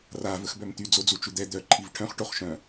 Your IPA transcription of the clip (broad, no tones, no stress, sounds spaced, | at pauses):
r a v ə x b œ m t̪ y d͡z o d͡z u t͡ʃ u d̪ ɛ d̪ œ ǃʰ i v ʈʰ œ̃ χ ʈ o χ ʃ œ̃